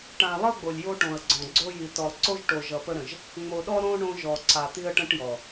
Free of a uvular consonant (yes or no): yes